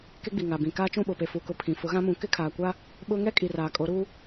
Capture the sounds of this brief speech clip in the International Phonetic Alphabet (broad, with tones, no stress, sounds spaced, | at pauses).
k e˦ ɡ͡b i˨ ŋ a˨ b ĩ˨ k aː˦ t͡ʃ ũ˦˨ ɓ o˨ p e˨ f u˨ k ʊ˨˦ pʰ ĩ˨ f ʊ˨˦ ɣ ã˦ m ũ˨˦ k ɪ˦ kʰ aː˨ kʷ a˦ | ɓ ʊ˦ ŋ ɛ˦ kʼ i˨ r aː˨ kʼ o˨˦ ɾ uː˦